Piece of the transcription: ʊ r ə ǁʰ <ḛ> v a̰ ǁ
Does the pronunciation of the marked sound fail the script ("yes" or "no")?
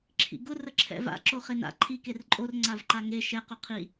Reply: yes